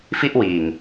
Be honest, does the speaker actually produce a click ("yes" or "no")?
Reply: no